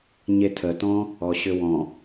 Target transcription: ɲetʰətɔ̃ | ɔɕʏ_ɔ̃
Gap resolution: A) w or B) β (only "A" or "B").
A